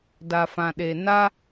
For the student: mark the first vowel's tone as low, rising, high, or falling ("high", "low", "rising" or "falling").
low